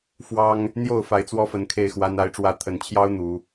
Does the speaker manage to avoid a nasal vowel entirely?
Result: yes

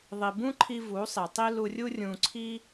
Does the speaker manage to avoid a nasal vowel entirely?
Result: no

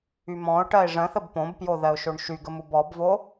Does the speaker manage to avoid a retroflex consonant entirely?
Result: no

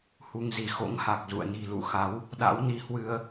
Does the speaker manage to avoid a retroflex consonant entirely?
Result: yes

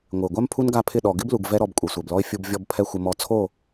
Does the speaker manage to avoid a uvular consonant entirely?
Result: yes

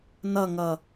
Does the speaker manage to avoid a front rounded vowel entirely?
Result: yes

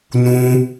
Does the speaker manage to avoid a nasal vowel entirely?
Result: no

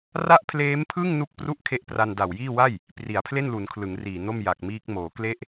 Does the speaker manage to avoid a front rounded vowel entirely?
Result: yes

